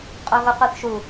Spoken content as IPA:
qʼ o ɣ o qʷ e θ ʃ u

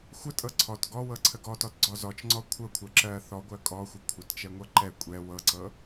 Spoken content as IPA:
xʷ ə tʼ ɤ ǀʰ ɔ t ɡ ɔ w ɤ ǀʰ ə ɡ ɔ t ɔ t ɡ͡ǀ ɔ z ɔ t͡ʃ ŋ͡ǀ ɔ kʷʰ ɤ kʷʰ ɜ ǁ ɜ θ ɔ ɡʷ ɜ kʼ ɔ xʷ ə kʷʰ ə t t͡ʃ ɛ ŋʷ ɤ ǃ ɛ kʷʼ ɛ w ɤ ǀ ɤ

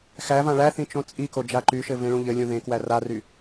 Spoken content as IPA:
x æ v ã ɭ æ θ ĩ t͡ʃ õ t͡sʼ i k o d͡ʒ a ǃ y ʃ ɘ v ẽ ɭ ũ ʎ ɘ lʲ ũ ð ẽ k w æ r a r y

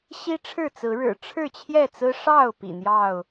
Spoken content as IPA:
ɕ i˦ ʈ͡ʂʰ ɻ̩˥˨ t͡s ɹ̩˨˦ ɻ ɻ̩˨˩ ʈ͡ʂʰ ɻ̩˥˨ t͡ɕʰ j ɛ˥˨ t͡s ɹ̩˦ ʂ ɑ˥˨ ʊ̯ p ḭ˨˩ n̪ j ɑ˥˨ ʊ̯

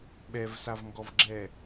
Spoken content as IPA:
ɓ ɛ v s a v ŋ ɡ ɔ v ɡ͡ǁ ɛ

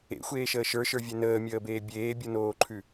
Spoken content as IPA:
ḛ xʷ eː ʃ əː ʃ ə˞ ʃ ə˞ vʲ e n əː mʲ əː b eː bʲ eː bʲ u n oː ǃʰ ʉ

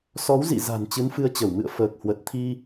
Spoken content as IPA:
s ɔ˨˦ w z ḭ˧˨ z a̤˨˩ n t͡ɕ ɨ˨˦ n f ɨ˧ ə̯ t͡ɕ ə˧˩ w m ɨ̰˧˨ ə̯ f əː˨˩ k̚ h w ə˨˩ t̚ t̪ʰ i˧

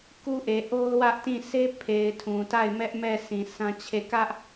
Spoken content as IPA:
k u˦ ʔ e˨ ʔ o˦ ʊ̯ w ä˦ ʔ t ĩ˦˨ sʰ e˦ pʰ e˨ ɪ̯ tʰ ũ˨ t a˦˨ ɪ̯ m ɛ˦ ʔ m ɛ˦˨ sʰ ĩ˨ sʰ ã˦ t͡ɕʰ e˦˨ k ä˦ ʔ

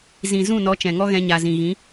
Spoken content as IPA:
z ĩ˨ z ũ˦˨ n ɔ˨˦ t͡ʃ ɛ̃˨ ŋ ɔ˦ ɣ ɛ̃˧ ɲ a˨ z ĩ˨ ɣ ĩ˨˦

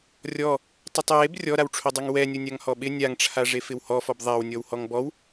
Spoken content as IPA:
rʲ ɔ | tˤ ɪ tˤ j e b rʲ ɔ ɾ a w ʈ͡ʂʰ o dˤ o ŋ w ɛ nʲ o nʲ a ŋ h ɔ ɓ ɪ nʲ a ŋ ʈ͡ʂʰ a ʐ e f ɪ w h ɔ f ɔ b ðˤ a w nʲ ɔ w h ɔ ŋ b ɔ w

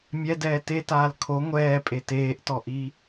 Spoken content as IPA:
mʲ ɛ d ɛː t e t aː l kʰ o ŋʷ ɛː pʼ e t eː ʔ t ɔ ʔ i

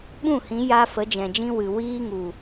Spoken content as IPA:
ɓ ũ˦˨ h ĩ˨˦ j a˧ f ə˨˦ d͡ʒ ɛ̃˨ d͡ʒ ĩ˦ w ɨ˨ w iː˦ ŋ u˨

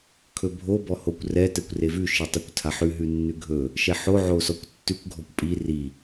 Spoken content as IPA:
kʰ ɵ bʱ o b ɔ h o kʷ r ɛ t ɛ kʷ r e v ʉ ʃ i tˤ o kʷ tʰ a ħ ʉ ɦ ʉ nː ʉ ɡʱ ɵ | ʃ ɛ ħ o ʕ o s ɔ kʷ tː ʉ kʷ ɡʱ ɔ kʷ pʼ i r i

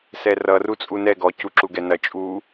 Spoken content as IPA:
s ɛ r ʌ r u t͡sʼ u n ɛ ɡ ɔ c u ǁ u ɡ ɛ n ɐ t͡ʃʼ u

